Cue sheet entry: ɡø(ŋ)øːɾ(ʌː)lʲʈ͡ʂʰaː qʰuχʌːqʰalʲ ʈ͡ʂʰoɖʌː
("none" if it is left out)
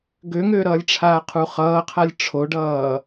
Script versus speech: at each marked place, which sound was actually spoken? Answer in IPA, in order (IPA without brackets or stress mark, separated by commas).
ŋ, ʌː